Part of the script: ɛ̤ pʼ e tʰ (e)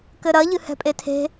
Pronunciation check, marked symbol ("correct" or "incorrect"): incorrect